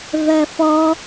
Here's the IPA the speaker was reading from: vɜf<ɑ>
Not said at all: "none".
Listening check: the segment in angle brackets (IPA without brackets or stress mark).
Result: ɔ